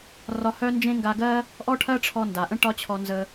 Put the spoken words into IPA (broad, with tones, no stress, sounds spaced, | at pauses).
r ɒ˧ h œ˥ n d͡ʒ ẽ˥ ŋ ɡ a˧ ɡ ɜ˥ | ʔ ɔ˥ ʈʰ ɜ˥ ʈ͡ʂʰ ɔ˧ n d a˩ ʔ ə̃˥ ʈ ɒ˥ t͡ɕʰ ɔ˧ n z ə˧